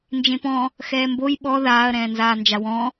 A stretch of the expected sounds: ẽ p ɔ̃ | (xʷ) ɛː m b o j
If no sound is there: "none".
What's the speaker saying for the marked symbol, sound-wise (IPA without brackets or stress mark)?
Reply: x